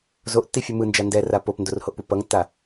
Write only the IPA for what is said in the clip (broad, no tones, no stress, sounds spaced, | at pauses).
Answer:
z o ʔ tː i fʲ ɯ m ɯ n d͡ʒ a n d ɛ r a p o p n d o r h o ʔ p u p ʌ ŋ tː a